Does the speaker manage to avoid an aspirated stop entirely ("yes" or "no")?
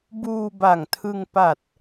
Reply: no